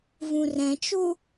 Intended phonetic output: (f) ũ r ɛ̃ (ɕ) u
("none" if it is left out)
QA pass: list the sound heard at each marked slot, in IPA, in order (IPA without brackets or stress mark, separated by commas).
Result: v, t͡ʃ